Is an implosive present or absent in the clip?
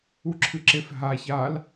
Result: absent